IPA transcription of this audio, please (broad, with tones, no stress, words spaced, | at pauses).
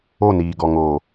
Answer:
o˦˨niː˨ ɡɔ˨ŋoː˨